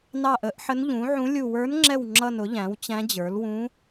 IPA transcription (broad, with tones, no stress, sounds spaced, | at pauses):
n ɑ˦˨ ʔ ə˩˥ ʔ ħ ə˧˥ n ʎ ũ˩˥ ʕ ũ˧˥ lʲ u˦˨ w ə˞˧˥ n ŋ͡ǁ ɛ˦˨ w ŋ͡ǁ ʌ˦˨ n ʊ˩˥ ʎ æ̃˩˥ w t͡ɕ æ̃˧˥ d͡ʑ ə˞˩˥ l w ũ˧˥